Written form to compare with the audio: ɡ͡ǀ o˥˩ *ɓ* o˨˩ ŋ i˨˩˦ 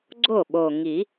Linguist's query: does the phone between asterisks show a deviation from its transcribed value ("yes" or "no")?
no